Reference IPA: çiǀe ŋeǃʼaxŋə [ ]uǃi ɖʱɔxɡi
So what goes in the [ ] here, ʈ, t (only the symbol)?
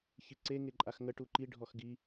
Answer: ʈ